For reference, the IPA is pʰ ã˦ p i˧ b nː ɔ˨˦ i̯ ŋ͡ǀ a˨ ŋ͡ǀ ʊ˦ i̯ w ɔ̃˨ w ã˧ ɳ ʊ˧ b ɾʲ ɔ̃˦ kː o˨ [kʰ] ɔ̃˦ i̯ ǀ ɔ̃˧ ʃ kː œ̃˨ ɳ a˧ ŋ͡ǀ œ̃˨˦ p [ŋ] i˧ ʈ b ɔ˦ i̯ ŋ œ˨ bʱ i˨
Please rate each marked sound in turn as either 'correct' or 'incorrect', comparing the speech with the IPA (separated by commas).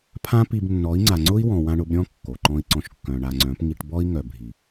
incorrect, correct